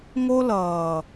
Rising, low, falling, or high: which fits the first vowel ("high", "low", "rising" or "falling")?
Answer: high